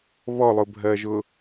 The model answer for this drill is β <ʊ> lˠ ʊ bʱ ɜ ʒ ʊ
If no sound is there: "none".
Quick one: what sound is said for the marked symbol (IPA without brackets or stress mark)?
ɔ